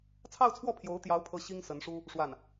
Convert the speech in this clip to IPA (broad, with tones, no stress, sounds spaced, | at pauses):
t͡sʰ ɑ˥˧ ʊ̯ t͡sʰ w ɔ˥˩ pʰ j o˧˥ ʊ̯ t̪ j ɑ˧˥ ʊ̯ pʰ ɤ˥ ɕ i˥ ŋ s ə˧˥ n ʂ u˥ | ʂ w a˥˩ n